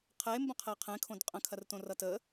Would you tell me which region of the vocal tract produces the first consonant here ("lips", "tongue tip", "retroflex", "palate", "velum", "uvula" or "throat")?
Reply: uvula